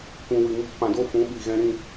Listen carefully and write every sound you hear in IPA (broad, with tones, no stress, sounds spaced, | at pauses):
kʷ ũ˨ w ɨ˨ ŋ i˧ k p ã˨ d o˦ f ũ˨˦ ɓ i˨ ɣ ɛ̃˧ ɾ ĩ˦˨